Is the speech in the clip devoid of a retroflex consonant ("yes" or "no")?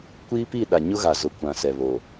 yes